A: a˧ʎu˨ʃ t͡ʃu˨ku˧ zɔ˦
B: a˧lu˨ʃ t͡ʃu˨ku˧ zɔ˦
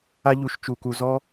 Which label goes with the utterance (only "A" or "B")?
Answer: A